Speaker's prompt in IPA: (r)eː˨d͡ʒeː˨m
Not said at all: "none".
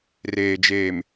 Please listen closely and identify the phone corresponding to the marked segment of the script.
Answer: r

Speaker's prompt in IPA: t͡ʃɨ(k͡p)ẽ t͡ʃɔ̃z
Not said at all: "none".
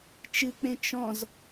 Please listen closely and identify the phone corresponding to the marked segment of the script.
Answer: k͡p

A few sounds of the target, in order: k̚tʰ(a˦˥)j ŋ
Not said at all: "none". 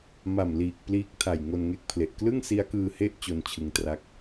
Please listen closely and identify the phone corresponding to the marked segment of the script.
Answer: a˨˩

